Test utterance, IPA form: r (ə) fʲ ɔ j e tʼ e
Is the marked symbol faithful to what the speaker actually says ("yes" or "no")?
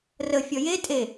yes